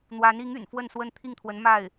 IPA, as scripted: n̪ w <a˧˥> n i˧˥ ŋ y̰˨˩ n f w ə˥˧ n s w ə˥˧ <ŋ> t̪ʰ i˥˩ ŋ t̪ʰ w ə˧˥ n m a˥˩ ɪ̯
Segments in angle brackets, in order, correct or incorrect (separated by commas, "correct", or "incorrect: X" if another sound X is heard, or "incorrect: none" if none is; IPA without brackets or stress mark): correct, incorrect: n